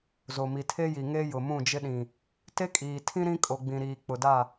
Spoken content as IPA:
z o˨ m i˨ tʰ e˦ j i˨ ŋ e˦ j ʊ˨ m ũ˦˨ d͡ʒ ɪ˦ ɗ ĩ˨ | t e˦ kʼ iː˨ tʰ ĩ˦ ɾ ĩ˦ kʼ o˨ ɡ͡b ĩ˨ ɾ iː˨ k͡p ʊ˨ d a˦˨

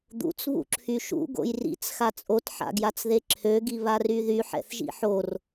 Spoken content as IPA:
d̪ ṵ t͡s β ṵ ǁʰ y ʃ ṵ ɡ o̰ j r ḭ t͡s x a t͡sʼ o t ħ a̰ ɡ j a t͡s ð e ǁʰ ø ɡ i β a r y ð y ħ ɛ̰ θ ʒ ḭ ħ o r

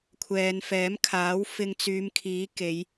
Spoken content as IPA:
kʷʰ ɛː˨ n f ɛː˨˥ m kʰ aː˨˥ w f ɪ˧ ŋ t͡s yː˨˧ m kʰ iː˨˥ k e˨˧ j

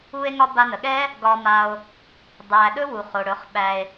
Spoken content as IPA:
u˧ e̯ ŋ ɒ˧ b a˧ n ə˨ ɠ ɛ˦ | ɡ ɒ˧ m a˧ o̯ | dˤ æ˨ ɗ ɵ˦ w u˨ χ o˨ ɽ ɵ˨˦ χ ɓ æ˧ e̯

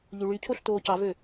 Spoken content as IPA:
ʎ y ɭ y cʰ o ɬ t oː c ɑ v ø

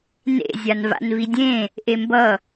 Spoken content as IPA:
n ḛ zʲ a n v a̰ n v i dʲ ẽ | ʔ e m b ʌ

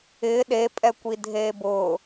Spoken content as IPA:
ɪː ɗ e pʼ ɛ kʷ i dʱ eː b ʊː

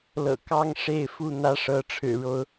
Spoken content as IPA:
l ɤ̰˨˩ k ɑ˦ ŋ ʂ e˥˨ ɪ̯ f u˥˨ n̪ ä˦ ʂ ɤ˨˦ ʈ͡ʂʰ ɻ̩˨˩ ɻ o˨˦ ʊ̯

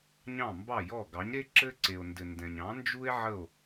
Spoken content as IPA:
ɲ ɑ̃˥˩ m b ɑ˥˩ j ɔ˥˩ ɡ ɑ˩˥ ɲ ɾ e˥ ǁ ɘ˥ ǀ e˩ o̯ n d ɘ˩ n d ɛ̃˩ ɲ ɑ̃˩˥ n d͡ʒ u˥ e̯ ʕ ə˥˩ o̯

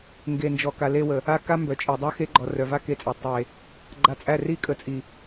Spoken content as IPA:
ŋ ɡ e˨ n d͡ʒ ɔ˨ k a˨ l e˧ w ə˨ | a˦ k a˦ m b œ˨ t͡ʃʼ e˨ dˤ œ˦ x e˦ ɡ͡ǃ ɔ˨ r œ˨ v a˦ k e˧ t͡sʼ œ˨ tˤ e˨ | ɡ͡ǃ a˧ t͡sʼ æ˦˨ r i˦˨ kʼ ə˨ t͡sʼ i˨

